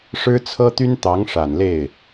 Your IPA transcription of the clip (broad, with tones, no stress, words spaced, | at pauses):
ʂɻ̩˥t͡sʰɤ˥t̪y˥nt̪ɑ˧˥ŋ ʂa˨˩nle˥˩ɪ̯